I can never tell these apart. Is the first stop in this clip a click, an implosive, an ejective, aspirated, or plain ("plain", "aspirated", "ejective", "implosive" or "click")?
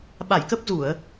implosive